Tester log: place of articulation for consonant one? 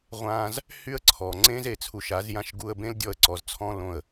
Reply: uvular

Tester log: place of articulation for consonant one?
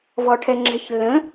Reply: labial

